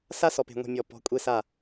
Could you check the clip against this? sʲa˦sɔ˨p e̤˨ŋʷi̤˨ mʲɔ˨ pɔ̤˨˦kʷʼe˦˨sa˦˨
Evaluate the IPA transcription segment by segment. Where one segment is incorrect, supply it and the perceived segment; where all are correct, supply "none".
sʲ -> s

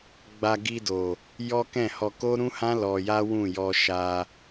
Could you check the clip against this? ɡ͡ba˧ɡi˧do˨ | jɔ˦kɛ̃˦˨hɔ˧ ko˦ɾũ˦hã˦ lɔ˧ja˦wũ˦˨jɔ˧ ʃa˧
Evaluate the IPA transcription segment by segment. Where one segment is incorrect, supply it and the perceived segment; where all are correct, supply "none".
none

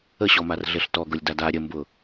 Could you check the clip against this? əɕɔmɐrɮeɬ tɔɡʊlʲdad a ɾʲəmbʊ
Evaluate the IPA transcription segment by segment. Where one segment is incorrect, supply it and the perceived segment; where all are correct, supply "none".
ɐ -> a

